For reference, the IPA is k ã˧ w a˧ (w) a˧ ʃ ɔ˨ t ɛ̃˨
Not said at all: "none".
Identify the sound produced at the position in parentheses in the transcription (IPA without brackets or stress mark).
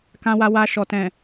w